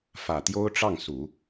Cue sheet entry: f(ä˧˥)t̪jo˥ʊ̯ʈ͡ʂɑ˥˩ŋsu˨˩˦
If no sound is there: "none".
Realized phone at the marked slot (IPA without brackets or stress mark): ä˨˩